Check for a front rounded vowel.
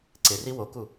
absent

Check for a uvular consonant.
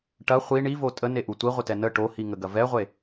present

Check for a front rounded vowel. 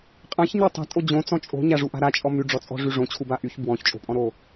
present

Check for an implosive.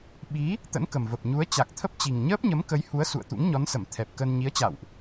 present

